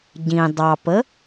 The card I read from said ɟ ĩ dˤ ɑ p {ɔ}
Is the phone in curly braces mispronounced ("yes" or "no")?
yes